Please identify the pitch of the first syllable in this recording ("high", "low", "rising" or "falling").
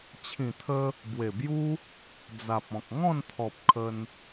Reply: low